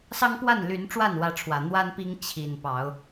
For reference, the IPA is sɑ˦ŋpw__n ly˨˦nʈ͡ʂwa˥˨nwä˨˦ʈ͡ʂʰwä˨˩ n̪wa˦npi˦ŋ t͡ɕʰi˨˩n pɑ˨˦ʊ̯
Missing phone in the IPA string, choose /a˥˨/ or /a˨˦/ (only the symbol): a˥˨